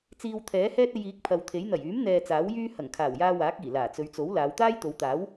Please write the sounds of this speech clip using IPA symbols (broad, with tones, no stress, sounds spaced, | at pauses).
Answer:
t͡s iː˧ w t̪ʰ ɛː˨˥ h ɛː˥ t̚ e˧ j iː˨˥ k̚ pʰ ɐ˨ w t̪ʰ e˨˥ j n̪ ɐ˨˩ j yː˨˥ m n̪ ɛː˧ t͡s aː˨˥ w j yː˥ h ɐ˨˩ ŋ kʰ aː˨˩ w j aː˧ w aː˨˥ k̚ iː˨˩ l aː˨˩ t͡s ɵ˨˧ ɥ t͡s o˨˥ w l aː˨˧ w t̪ aː˥ j t̪ o˨˧ w t̪ aː˨˥ w